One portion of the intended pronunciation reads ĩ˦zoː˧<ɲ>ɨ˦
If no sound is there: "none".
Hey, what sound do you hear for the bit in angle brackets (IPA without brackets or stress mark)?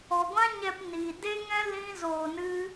n